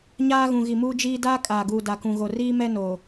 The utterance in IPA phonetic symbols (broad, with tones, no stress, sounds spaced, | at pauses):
ɲ aː˦ ɣ ũ˨ ɣ i˨ m uː˦ d͡ʒ iː˦ d aː˦ kʼ aː˨ ɡ uː˨ d a˨ k ũ˨ ɣ o˨ r iː˦ m ɛ˦ n o˨